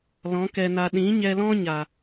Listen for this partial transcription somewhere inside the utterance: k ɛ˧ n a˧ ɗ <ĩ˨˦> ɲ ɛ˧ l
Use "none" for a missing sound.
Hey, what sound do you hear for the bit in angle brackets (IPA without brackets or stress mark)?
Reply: ĩ˨˦